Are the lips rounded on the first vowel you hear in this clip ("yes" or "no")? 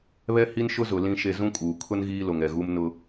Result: no